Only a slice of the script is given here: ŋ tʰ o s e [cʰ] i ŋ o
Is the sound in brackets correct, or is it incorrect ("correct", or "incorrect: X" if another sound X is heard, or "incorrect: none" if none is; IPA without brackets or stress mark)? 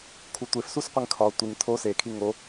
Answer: incorrect: kʰ